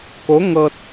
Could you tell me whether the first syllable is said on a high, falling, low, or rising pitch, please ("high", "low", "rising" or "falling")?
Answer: rising